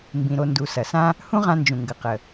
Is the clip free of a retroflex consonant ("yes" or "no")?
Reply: yes